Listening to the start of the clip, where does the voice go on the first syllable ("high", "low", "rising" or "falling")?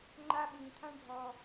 high